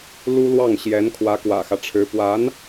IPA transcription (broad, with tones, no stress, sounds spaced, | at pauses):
l u˥ l w ɑ˥˩ ŋ ɕ j ɛ˧˥ n kʰ w ä˧˥ k w ä̰˨˩ x ä˦ ʈ͡ʂʰ ɻ̩˧˥ p w a˧˥ n